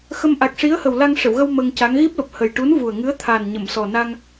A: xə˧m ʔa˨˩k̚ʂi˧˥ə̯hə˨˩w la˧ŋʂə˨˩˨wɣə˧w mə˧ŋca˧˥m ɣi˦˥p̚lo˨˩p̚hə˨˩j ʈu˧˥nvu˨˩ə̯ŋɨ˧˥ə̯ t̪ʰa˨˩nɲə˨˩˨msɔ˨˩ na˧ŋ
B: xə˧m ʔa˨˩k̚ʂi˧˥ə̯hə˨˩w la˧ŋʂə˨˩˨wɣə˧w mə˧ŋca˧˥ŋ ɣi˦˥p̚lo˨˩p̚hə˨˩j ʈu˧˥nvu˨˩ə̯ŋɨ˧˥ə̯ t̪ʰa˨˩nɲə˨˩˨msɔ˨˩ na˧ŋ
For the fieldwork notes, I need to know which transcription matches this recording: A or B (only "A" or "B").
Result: B